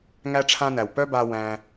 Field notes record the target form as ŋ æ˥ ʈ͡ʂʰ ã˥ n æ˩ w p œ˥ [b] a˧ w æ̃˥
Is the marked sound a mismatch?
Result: no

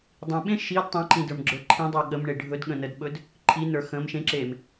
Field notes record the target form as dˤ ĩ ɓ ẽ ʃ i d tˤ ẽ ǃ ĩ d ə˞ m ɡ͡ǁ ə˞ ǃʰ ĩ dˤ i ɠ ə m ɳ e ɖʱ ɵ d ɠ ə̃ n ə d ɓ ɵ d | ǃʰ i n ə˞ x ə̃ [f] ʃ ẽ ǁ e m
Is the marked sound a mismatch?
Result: yes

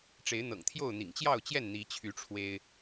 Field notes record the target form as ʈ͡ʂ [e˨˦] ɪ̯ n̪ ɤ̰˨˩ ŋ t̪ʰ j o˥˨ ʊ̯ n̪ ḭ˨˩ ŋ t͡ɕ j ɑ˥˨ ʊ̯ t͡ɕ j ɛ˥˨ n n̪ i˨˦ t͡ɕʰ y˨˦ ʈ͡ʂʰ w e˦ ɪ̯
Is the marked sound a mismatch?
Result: no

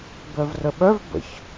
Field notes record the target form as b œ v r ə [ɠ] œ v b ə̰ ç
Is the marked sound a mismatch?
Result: yes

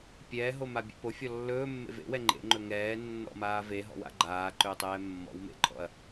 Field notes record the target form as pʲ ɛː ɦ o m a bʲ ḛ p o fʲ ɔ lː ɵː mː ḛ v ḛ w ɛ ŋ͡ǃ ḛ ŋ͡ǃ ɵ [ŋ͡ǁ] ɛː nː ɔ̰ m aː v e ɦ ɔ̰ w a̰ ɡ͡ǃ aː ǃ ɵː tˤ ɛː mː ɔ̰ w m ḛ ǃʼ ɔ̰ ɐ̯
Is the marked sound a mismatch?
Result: yes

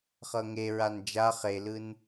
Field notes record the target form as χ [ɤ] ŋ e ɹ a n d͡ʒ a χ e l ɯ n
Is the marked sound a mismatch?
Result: no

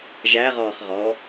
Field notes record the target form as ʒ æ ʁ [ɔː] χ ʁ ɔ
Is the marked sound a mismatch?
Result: no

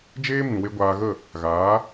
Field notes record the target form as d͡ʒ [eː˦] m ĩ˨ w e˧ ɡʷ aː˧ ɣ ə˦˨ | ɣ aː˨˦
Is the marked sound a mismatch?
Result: no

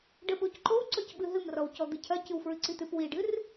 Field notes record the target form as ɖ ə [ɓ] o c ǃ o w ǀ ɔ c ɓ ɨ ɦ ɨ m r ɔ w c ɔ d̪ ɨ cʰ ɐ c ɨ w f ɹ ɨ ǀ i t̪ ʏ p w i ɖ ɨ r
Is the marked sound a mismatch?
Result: no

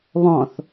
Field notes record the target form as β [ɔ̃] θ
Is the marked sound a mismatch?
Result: no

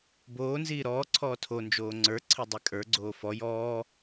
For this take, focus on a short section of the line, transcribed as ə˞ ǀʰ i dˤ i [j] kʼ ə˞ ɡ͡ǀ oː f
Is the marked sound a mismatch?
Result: yes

